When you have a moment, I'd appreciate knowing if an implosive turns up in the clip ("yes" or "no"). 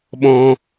yes